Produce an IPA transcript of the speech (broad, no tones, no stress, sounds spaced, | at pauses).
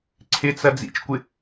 ǀʰ ɪ t͡s ɐ d͡z ḭ t͡ʃ kʷ ɪ